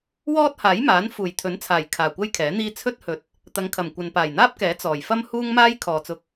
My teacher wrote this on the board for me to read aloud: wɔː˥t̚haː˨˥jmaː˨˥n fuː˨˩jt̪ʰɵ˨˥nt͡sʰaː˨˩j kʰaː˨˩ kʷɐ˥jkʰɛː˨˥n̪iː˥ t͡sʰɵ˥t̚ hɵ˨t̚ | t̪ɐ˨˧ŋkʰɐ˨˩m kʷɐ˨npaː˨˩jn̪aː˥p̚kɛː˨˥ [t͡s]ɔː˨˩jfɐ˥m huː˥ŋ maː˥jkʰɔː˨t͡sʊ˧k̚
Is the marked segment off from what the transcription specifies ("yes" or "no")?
no